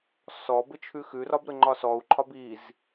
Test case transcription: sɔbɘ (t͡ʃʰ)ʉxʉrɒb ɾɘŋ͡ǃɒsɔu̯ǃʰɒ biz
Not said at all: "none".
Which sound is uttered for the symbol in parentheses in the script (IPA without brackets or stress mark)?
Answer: t͡ʃʰ